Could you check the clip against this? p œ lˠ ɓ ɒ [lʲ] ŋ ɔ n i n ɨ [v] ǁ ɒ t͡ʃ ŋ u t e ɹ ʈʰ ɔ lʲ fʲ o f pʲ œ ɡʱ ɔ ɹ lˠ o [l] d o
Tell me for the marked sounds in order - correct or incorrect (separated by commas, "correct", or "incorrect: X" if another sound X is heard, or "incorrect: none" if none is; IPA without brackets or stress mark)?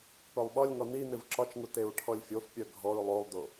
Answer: correct, correct, incorrect: lˠ